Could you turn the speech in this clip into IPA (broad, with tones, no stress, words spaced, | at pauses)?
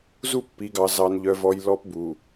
zu˦pːi˨ɡɑ˨ zɑ˨nʎœ˨vɔ˨j lɔ˦pbu˨